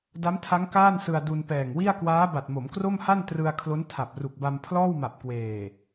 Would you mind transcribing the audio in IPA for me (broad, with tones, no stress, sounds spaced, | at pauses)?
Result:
d a˦˥ m tʰ a˦˥ ŋ k aː˥˩ n s ɯ˧ a̯ d u˧ n p ɛː˨˩ ŋ w i˥˩ a̯ k w aː˦˥ b a˨˩ t̚ m o˩˦ m k r o˥˩ m h a˥˩ n t r ɯ˧ a̯ kʰ l o˦˥ n tʰ a˨˩ p̚ r u˨˩ k̚ b a˧ m pʰ l ɔː˥˩ w m a˨˩ p̚ k w eː˨˩